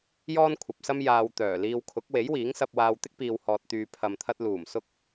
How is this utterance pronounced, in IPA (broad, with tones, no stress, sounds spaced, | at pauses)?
j ɔː˥ n kʷʰ ɐ˨ p̚ s ɐ˥ m j aː˧ w t̪ œː˨˩ l iː˧ w kʰ ʊ˨˥ k̚ w e˨˥ j w iː˨˥ ŋ s ɐ˧ p̚ w aː˧ w t̪ ɪ˥ k̚ p iː˨ w h ɔː˨ t̚ t̪ yː˨ pʰ ɐ˨ m t̪ʰ ɐ˧ t̚ l uː˨˩ m s ʊ˧ k̚